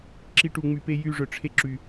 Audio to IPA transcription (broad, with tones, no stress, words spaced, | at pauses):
ǁi˧ʈu˨ŋ͡my˨pe˧ jy˦˨ʐœ˨ʈ͡ʂʰe˦ ǁy˨